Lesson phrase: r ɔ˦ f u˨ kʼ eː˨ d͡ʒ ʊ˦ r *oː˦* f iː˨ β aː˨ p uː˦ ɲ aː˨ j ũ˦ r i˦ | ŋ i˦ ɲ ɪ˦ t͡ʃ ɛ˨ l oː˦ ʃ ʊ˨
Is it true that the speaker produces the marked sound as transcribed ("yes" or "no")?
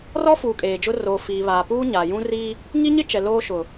no